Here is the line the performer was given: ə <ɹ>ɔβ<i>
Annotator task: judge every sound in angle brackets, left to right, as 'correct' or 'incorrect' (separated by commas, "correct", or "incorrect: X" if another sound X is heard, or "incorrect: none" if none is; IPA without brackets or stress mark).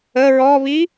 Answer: correct, correct